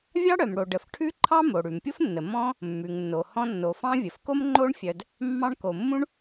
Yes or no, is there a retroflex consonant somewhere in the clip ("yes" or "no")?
yes